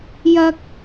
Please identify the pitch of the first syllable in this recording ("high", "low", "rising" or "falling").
high